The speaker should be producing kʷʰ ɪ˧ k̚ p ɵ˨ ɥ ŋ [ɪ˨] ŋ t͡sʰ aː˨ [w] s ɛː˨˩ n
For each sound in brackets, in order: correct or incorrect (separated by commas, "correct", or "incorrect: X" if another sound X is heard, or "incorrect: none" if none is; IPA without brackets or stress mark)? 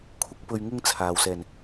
incorrect: ɪ˧, correct